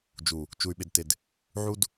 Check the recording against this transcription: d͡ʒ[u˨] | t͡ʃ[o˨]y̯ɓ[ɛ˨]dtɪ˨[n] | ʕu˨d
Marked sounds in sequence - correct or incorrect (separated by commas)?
correct, incorrect, incorrect, incorrect